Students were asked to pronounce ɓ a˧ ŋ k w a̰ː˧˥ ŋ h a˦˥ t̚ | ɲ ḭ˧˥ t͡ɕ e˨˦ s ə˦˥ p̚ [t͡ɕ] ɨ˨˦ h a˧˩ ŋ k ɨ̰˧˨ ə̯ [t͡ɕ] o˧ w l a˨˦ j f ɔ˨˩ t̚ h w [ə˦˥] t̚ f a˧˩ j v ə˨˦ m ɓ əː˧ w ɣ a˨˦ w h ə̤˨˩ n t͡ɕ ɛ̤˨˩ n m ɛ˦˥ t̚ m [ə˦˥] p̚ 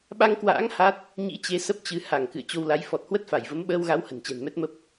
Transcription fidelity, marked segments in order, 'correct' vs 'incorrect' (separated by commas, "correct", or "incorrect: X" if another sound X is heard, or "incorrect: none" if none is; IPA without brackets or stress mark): correct, correct, correct, correct